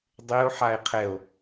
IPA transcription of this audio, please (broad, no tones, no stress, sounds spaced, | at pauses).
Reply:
dˤ e o̯ ħ a e̯ qʰ ɛ o̯